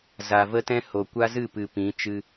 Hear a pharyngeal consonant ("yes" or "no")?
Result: no